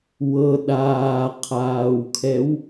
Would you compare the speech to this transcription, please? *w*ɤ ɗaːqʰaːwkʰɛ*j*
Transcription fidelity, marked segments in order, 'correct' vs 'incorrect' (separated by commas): correct, incorrect